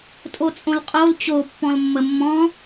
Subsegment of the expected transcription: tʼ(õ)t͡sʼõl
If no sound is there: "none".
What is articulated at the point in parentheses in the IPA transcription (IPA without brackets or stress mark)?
o